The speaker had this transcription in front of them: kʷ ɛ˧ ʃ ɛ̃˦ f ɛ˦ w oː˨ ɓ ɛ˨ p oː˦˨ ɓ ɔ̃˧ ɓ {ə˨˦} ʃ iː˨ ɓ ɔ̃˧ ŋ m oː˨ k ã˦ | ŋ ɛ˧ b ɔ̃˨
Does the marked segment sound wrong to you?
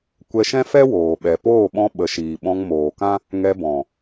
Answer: no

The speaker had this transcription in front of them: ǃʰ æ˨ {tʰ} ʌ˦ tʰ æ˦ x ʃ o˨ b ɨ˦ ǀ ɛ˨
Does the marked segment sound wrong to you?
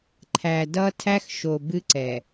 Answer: yes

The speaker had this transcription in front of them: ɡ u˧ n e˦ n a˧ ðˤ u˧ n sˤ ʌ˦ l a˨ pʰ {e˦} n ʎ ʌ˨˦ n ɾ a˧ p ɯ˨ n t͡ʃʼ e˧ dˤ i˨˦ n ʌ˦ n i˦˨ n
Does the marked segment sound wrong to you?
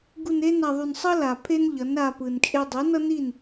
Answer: no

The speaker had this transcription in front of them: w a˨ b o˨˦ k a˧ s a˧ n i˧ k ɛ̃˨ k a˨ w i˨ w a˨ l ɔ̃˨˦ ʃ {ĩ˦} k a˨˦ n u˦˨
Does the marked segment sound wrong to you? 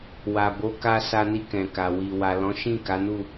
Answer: yes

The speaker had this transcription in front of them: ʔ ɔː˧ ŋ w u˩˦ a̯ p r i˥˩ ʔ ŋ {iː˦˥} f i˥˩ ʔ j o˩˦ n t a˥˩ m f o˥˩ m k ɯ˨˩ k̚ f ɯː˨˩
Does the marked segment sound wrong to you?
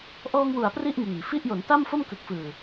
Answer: yes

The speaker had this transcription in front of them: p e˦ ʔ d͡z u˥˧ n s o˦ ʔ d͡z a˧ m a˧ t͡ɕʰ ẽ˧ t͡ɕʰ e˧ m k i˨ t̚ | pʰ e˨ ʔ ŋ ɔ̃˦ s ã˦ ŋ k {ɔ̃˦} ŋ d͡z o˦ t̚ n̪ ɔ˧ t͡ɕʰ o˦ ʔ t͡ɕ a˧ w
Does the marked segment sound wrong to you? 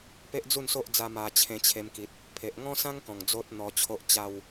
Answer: yes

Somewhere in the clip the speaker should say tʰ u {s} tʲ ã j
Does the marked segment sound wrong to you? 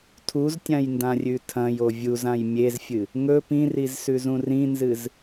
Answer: yes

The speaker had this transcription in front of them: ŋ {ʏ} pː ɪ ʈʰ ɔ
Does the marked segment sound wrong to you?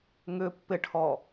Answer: no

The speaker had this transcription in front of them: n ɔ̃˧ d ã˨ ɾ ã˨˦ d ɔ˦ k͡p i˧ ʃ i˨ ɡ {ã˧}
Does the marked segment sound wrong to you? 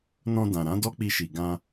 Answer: no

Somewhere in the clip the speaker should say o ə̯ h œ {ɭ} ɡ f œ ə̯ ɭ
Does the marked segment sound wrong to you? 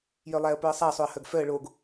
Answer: yes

